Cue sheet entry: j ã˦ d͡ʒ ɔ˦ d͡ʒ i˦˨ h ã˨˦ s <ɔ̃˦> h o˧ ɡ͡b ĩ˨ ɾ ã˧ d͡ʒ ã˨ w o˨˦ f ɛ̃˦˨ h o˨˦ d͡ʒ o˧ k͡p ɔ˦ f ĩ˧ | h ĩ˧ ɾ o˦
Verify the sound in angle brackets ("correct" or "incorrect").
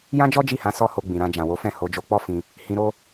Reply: incorrect